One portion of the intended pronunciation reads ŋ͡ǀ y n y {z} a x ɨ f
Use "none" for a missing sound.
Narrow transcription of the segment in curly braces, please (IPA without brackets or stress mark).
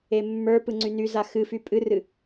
z